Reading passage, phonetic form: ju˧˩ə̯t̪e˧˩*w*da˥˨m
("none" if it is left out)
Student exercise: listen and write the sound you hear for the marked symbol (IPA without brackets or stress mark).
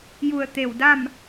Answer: w